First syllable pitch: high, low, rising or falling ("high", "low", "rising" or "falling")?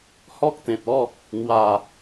high